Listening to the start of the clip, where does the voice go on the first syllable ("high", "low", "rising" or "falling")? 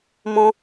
high